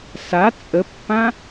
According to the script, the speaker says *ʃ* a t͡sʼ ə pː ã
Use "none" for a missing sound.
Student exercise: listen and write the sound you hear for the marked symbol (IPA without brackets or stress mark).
s